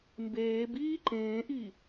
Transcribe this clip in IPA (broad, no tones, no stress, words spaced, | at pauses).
mbeːb iːǃẽːʔi